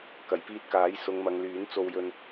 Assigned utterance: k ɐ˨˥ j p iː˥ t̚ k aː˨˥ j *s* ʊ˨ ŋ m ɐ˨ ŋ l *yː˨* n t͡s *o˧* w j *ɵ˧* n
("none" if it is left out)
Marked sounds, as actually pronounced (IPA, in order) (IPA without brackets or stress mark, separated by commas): s, yː˨˥, o˧, ɵ˧